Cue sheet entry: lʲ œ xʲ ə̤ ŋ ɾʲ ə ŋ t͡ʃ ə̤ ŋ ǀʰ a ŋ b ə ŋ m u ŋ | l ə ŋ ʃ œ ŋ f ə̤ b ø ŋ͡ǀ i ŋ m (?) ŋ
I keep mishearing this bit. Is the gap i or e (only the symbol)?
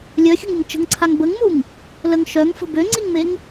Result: e